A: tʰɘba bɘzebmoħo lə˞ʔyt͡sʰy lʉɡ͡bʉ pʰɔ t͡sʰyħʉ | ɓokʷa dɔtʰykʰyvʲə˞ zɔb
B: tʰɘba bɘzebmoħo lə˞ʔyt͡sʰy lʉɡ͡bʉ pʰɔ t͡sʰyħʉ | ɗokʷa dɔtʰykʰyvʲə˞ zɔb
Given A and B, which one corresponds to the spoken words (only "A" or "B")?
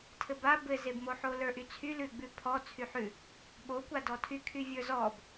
A